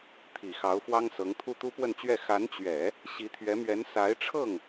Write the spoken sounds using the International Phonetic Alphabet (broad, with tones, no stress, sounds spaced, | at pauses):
t̪ʰ i˨˩ x ɑ˧˥ ʊ̯ f w ɑ˥ ŋ s ɤ˧˥ ŋ t̪ʰ u˥ t̪ u˥ p w ə˥˧ n t͡ɕ ɥ ɛ˥˩ x a˧˥ n t͡ɕ ɥ ɛ˨˩˦ | ɕ i˧˥ t̪ʰ ɥ ɛ˧˥ m ɥ ɛ˧˥ n s a˧˥ ɪ̯ ʈ͡ʂʰ ɤ˥˩ ŋ